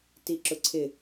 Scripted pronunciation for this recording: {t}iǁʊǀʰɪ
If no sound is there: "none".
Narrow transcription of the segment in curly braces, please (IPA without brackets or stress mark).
t